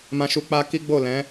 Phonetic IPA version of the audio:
m ã˧ ʃ u˧ k͡p a˧ k i˦ ɡ͡b o˦˨ l ɛ̃˨˦

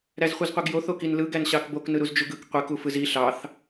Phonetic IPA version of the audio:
ɾ æ z χʷ i z qʷ i ɡ j o θ o k i n l ɯ ɡ æ n ɕ ɑ k b o k n ɯ ɾ u z d͡ʒ u ɡ ɯ k qʷ i k u f ɯ z i ɬ ɑ θ

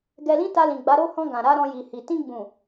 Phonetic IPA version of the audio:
ɡ ɛ˧ l ĩ˦ t a˧ l ĩ˨ ɡ͡b a˨˦ ɾ o˦˨ h ɔ̃˧ ɡ ã˨ ɾ a˧ ɾ ɔ̃˧ j i˨ h i˨ t ĩ˧ ɡ͡b ũ˨

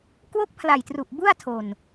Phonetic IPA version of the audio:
k w o˦˥ k̚ pʰ l a˨˩ j t r u˨˩ ʔ b u˥˩ a̯ tʰ o˨˩ n

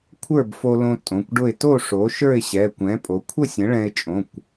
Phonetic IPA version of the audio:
kʷʰ ə˞˥˨ b f o˧ l õ˧ tʼ õ˩˧˩ kʷ ɖ ʊ˥˨ ɪ̯ t o˥˨ ʂ o˩˥ ʃ ə˞˥˨ ɪ̯ ɕ ɛ˩˧˩ kʷ ɛ̃˩˥ pʼ o˩˧ kʷʰ ə˥˨ sʲ ə̃˩˥ ɭ ɛ̃˧ ɪ̯ t͡ʃʼ õ˩˧˩ kʷ

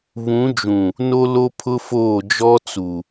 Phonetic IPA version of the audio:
β ũ˨˦ d͡ʒ ũ˨ | n o˦ l o˦ pʰ ʊ˦ f oː˦˨ d͡ʒ ɔ˦ t͡s u˨

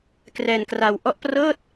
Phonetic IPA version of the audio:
k r ɛː˧ n k r a˧ w ʔ ɔ˦˥ ʔ p r ɤː˥˩ t̚

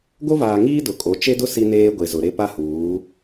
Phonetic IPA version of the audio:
ɡ o˦ v aː˨ ŋ iː˦ d ʊ˨ kʼ o˨˦ t͡ʃ e˦ d ʊ˦ s i˦ n eː˦ ɡʷ e˨ z ʊ˨ ɾ e˦ p a˦ h uː˨˦

